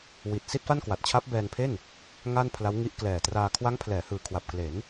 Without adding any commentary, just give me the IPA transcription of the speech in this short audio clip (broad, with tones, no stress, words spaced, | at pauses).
wi˨˩t̚ si˥˩t̚fa˥˩nkwa˨˩t̚t͡ɕʰa˦˥p̚ bɛː˧npʰe˥˩n | ŋa˥˩npʰla˦˥wŋi˦˥ʔ klɛː˨˩traː˧ kʰwa˦˥ŋpʰlɛː˩˦ hɯː˨˩kʰwa˨˩p̚kle˩˦n